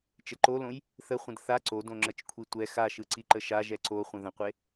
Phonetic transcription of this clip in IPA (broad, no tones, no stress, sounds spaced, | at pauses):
t͡ʃ ə ǃ o l õ j | θ ə χʷ ə̃ d θ a ǀ o d õ ŋ͡ǁ ə t͡ʃ kʷʰ i tʷ ɛ x a ʃ ɯ ǀ i ǃ ə ʃ a ʒ ɛ ǀ o χʷ ə̃ ð ə̃ qʷ e